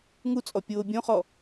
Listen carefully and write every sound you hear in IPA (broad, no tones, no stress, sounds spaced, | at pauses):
ŋ u t͡sʼ ɔ pʲ oː bʲ õ χ ɔ